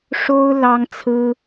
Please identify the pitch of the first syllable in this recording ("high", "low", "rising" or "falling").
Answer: high